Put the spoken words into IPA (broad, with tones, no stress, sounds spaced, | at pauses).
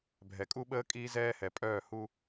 bʱ ɛ˨ kʼ u˦ ɓ əː˦ kʼ iː˦ z ɛː˦ h ɛ˨ pʼ œː˦˨ h u˦